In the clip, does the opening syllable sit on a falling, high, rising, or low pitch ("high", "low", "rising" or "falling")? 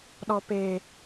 low